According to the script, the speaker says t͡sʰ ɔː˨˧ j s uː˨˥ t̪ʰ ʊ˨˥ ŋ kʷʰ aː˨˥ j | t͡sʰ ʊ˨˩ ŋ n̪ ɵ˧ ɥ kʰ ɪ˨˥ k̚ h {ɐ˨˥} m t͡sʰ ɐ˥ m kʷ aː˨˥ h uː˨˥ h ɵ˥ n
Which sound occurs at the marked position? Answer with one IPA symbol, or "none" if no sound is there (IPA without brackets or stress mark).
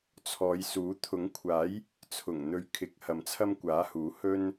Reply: ɐ˨